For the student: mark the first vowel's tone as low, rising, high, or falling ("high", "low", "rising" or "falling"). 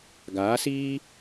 rising